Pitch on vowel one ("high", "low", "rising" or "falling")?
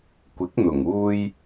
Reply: rising